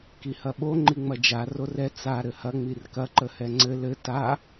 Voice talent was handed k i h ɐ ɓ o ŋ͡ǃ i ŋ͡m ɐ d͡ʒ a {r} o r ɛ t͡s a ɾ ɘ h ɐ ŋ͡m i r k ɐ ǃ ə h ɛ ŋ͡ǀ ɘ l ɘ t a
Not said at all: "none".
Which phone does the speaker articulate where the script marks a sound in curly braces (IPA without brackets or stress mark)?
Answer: r